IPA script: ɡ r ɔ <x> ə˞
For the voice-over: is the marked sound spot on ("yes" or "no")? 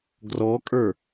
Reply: no